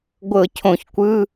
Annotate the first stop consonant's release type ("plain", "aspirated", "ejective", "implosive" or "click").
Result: plain